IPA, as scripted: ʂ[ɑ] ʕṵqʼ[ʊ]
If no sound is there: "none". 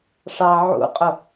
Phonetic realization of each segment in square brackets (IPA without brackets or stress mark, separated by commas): ɑ, ʊ